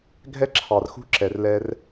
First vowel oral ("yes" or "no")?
yes